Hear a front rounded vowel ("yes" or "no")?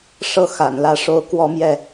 no